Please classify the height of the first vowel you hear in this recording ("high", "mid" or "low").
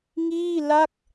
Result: high